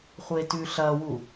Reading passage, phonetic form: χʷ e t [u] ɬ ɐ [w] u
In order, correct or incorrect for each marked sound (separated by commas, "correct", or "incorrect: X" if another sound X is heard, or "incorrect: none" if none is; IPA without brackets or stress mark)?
incorrect: ʉ, correct